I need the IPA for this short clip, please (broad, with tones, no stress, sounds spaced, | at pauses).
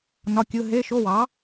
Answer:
n ɒ˧˥˧ kʲ ɯ˧˥˧ ɦ e˧˥˧ ʃ o˧˥˧ w ɑ˩˥